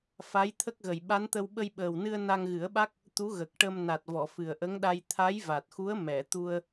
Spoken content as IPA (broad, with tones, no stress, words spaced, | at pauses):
fa˧˥jt̪ʰə˦˥k̚ɣə˨˩j ɓa˧˥nt̪ə˧w ɓə˧jɓəː˨˩wnɨ˧ə̯ na˧ŋɣɨ˨˩˦ə̯ɓa˦˥k̚ | t̪u˧˥ɣə˨˩k̚ʈə˧m na˨˩t̚vɔ˨˩˨ fɨ˨˩ə̯ʔə˧˥ŋɗa˧j t̪ʰa˧˥jva˨˩t̚xu˧˥ə̯ mɛ˨˩˨t̪u˧ə̯